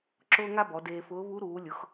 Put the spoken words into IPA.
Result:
ǁ ʊː˥ ŋ a˥ b ɔ˩˧ d eː˧ f ʊː˧˥ β u˧˥ ɾ uː˩˧ lʲ ʊ˩˧ x

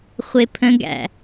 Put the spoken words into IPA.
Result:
χʷ e pʰ ə̃ ɡ æ̰

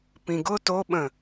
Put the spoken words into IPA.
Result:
p ĩ ɡ ʊ t o ɓ ə̃

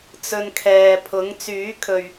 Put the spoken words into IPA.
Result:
t͡s ɵ˧ n kʰ ɛː˨ pʰ ʊ˨˥ ŋ t͡s yː˨˥ kʰ ɵ˨ ɥ

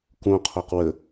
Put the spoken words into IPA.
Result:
k ũ qʰ o q w ə

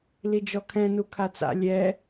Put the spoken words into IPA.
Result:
l i d͡ʒ ɔ kʰ ɛ̃ n u kʰ a t͡s a̰ lʲ ɛ

